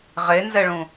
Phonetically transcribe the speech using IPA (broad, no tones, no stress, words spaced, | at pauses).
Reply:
ʁenzɛɭũ